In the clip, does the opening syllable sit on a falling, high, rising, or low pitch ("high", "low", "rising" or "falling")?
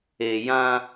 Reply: low